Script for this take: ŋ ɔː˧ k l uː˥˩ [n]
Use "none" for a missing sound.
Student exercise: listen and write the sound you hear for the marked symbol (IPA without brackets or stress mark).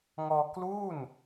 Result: n